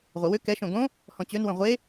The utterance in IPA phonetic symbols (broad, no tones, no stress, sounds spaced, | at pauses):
ʁʷ ə w ʏ k ɛ ʃ õ ɡ õ | h ɔ̃ t͡ɕ ø n w ə̃ ʁʷ e